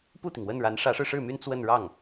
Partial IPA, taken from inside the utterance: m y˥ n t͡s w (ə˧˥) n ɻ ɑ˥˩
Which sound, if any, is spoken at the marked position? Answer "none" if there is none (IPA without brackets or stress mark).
ə˥˧